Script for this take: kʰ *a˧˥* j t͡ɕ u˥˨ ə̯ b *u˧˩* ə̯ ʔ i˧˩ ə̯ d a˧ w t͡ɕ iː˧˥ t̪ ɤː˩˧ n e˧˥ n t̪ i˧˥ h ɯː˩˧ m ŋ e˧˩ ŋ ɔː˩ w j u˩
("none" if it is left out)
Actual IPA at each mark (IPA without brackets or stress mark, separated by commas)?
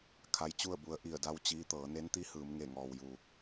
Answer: a˧, u˧